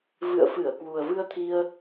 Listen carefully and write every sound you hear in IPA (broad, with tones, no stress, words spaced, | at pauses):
vɨ̰˧˨ə̯fɨ˧˩ə̯ kwu˨˩ə̯vɨ˧ə̯t̪ʰi˧ə̯